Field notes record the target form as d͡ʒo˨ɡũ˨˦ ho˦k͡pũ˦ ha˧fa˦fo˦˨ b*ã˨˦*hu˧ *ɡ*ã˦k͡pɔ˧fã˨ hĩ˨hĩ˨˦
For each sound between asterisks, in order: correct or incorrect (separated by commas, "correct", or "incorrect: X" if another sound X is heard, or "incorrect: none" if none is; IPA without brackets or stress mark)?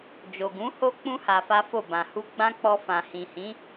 incorrect: ã˨, incorrect: ɡ͡b